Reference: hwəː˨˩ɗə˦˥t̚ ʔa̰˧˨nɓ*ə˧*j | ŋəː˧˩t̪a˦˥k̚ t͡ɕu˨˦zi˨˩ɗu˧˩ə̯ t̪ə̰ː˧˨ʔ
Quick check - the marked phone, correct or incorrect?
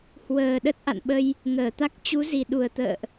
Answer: correct